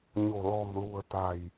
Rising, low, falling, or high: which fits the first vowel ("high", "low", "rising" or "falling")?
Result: low